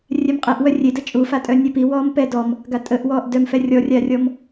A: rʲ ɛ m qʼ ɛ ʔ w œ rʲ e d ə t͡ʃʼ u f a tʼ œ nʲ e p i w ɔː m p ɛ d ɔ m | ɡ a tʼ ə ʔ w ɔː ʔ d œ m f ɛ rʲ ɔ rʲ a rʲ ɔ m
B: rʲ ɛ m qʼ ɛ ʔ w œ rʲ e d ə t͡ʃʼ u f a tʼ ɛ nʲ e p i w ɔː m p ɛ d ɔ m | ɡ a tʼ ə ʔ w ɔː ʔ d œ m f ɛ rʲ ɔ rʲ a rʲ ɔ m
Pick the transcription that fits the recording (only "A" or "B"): A